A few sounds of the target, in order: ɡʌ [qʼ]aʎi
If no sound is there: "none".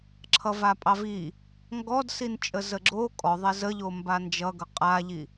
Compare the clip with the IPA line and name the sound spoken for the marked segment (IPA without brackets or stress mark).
qʼ